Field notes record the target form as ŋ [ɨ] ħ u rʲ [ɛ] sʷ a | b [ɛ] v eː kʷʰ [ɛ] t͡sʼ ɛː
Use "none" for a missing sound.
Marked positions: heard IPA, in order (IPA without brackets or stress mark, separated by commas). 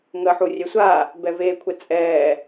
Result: ə, ɛ, ɛ, ɛ